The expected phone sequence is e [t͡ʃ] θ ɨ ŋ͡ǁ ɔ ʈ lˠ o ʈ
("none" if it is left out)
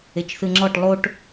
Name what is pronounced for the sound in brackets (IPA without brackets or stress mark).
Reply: t͡ʃ